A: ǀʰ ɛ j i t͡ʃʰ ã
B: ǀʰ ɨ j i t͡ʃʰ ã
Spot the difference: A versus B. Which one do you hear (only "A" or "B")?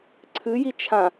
B